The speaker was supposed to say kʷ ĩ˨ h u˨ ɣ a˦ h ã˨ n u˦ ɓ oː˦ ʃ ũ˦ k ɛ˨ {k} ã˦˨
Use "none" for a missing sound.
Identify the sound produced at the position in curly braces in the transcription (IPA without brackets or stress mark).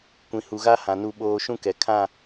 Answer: kʰ